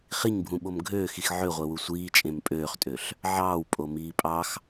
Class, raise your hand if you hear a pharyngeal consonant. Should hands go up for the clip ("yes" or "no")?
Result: yes